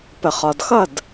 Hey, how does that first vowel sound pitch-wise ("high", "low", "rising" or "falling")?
low